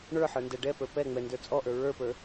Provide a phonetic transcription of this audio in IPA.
ɳ ə˞ ħ ə˞ n d ɛ ɖ ɛ p ə˞ p ɛ ŋ͡m ɛ n d ə˞ t͡sʼ ɔ ʔ ə˞ ɹ ə˞ p ə˞

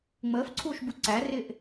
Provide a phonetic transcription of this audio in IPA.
ŋ͡m əː f ǀʰ uː ʃ b u ǀ æ r ɪː ʔ

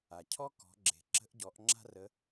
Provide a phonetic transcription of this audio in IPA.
a˩ cʰ ɔ˥ k ɔ̤˩˧ ɡ͡ǁ e̤˩ ǁ ə̤˧˥ ʔ ɟ ɔ˩˧ ʔ ŋ͡ǁ a̤˥ r ə˧˥

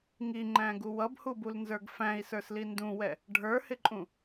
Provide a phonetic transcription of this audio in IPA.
ŋ i ŋ͡ǃ æ̃ ɡ u w ʌ b h u b u l n z ə˞ ɡ f æ̃ i̯ s ə˞ s l i n d ũ w ɛ | ɖʱ ə˞ h ɪ ǃʼ ũ

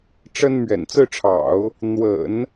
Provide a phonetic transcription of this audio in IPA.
ʈ͡ʂ ə˥ n m ɥ ɛ̰˨˩ n t͡s ɹ̩˥˩ ʈ͡ʂʰ ɑ̰˨˩˦ ʊ̯ | n̪ w ə̰˨˩˦ n

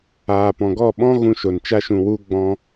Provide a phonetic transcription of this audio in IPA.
aː˨ p ɔ̃˨ ɡ ɔ˦˨ ɓ ɔ̃˦ ɣ ũ˧ ʃ o˨ n t͡ʃ a˦ ʃ ũ˧ w u˧ ɡ͡b ɔ̃˧

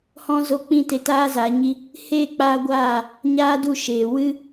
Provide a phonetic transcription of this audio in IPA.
h ɔ̃˦ z o˦ k͡p ĩ˦ t e˧ t aː˦ z aː˨˦ ɲ i˦ | h eː˦˨ k͡p aː˧ ɡʷ aː˦˨ | ɲ aː˦ d u˦˨ ʃ eː˨ w ɨ˦

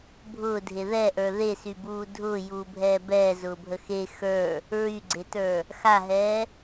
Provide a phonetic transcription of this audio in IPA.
bʱ ʊː dʱ e ð ɛ ʔ ə˞ ð e s y b uː dʱ ʊː j uː bʱ ɛː b ɛː z ʊː bʱ ə x e x ə˞ | ɹ y ɡ͡ǀ e t ə˞ | x a ɦ ɛː

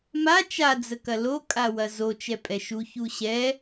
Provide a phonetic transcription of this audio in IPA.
m a t͡ʃ a d͡z ə k ɐ l o kʼ a w ɐ z o t͡ʃ ɛ pʼ ɛ ʃ u ç u ɕ ɛ

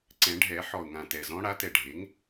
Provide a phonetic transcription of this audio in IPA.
ǀ ɛ̃˨˩˦ ɖʱ ɛ˨˩˦ ħ ɔ˨˩ ʊ̯ ŋ ã˨˩ t ɛ˨˩ z ɔ̃˧˥ ɽ a˩˥ t ɛ˨˩ ɖʱ e˩˥ ŋ

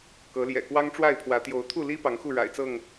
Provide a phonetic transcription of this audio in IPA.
k ɤ˨˦ l j ɛ̰˨˩ k w ɑ˦ ŋ ʈ͡ʂ w a˥˨ ɪ̯ pʰ w ä˨˦ t̪ j o˨˦ ʊ̯ t̪ʰ u˥˨ l i˦ p ɑ˨˦ ŋ x u˥˨ ɻ a̰˨˩ ɪ̯ t͡s ɤ˥˨ ŋ

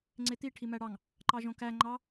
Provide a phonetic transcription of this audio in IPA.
ŋ͡ǀ e t̪ i ʈʰ i m æ ɽ ɑ ŋ | ǃ ɑ ʒ õ k æ ŋ͡ǃ ɑ

